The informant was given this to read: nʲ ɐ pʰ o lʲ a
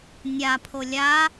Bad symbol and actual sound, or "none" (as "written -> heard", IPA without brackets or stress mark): ɐ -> a